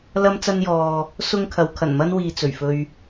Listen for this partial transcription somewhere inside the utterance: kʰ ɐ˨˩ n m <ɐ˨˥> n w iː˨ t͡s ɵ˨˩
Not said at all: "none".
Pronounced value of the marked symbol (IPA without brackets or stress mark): ɐ˥